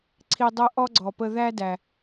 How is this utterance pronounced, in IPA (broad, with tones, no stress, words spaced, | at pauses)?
ǀʰi˧dˤɤ˦ ʔɔ˦ɡ͡ǀɔ˨pə˧ðæ˦ dæ˨